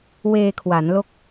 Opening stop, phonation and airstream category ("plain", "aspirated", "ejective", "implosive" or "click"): aspirated